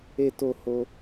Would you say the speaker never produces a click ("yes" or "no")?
yes